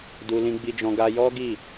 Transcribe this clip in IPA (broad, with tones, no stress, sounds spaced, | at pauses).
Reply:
d u˧ l ĩ˧ ɡ͡b i˧ d͡ʒ ɔ̃˧ ɡ a˧ j ɔ˦ ɡ i˦˨